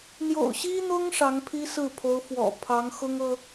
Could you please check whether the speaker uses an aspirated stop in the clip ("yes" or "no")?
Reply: yes